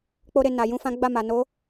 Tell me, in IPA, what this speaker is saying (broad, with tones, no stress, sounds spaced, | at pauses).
k͡p o˧ ɾ e˨ n a˨ j ũ˧ f ã˦ ɡ͡b a˦˨ m a˨ n o˨˦